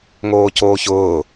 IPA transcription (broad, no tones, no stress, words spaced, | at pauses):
ŋoːcoːçʊː